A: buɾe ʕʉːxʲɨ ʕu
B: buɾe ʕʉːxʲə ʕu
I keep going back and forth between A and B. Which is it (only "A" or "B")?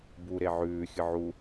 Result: A